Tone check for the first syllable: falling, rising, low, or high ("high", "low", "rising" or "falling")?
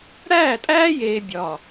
falling